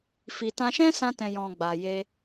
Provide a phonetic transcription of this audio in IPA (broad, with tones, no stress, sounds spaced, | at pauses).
f i˨ t ã˧ ʃ ɛ̃˦ s ã˦ t ɛ̃˧ j ɔ̃˨ ɡ͡b a˧ j e˦